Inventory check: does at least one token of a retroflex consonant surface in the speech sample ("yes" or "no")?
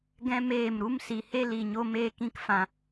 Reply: no